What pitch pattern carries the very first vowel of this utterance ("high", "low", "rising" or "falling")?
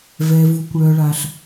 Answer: low